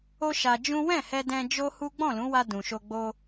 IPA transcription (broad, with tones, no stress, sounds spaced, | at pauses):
o˦ ʃ a˧ d͡ʒ ũ˦ w ɛ̃˦˨ h ɛ˧ d ɛ̃˧ d͡ʒ o˦ h u˦ ɡ͡b ɔ̃˦˨ l ũ˨˦ w a˧ d ũ˨ ʃ o˧ ɡ͡b o˧